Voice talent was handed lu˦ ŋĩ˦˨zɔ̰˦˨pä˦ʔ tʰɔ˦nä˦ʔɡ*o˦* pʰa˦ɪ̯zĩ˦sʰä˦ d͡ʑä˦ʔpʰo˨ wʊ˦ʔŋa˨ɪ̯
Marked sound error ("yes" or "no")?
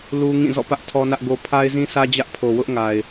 no